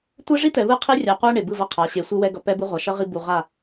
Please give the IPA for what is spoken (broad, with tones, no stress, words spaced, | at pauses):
tʷe˦ʐi˦t̪ɛ˨βɯ˦ qʰe˦rʲa˨qʷa˦ ɳe˨bɯ˦˨vʌ˦qʰa˨˦ ɕe˨˦sʷɯ˦wɛ˦ ɡʌ˨ pɛ˦bɯ˦ʁʷa˨ ʃʌ˦ʁi˦bu˨ ʁa˦˨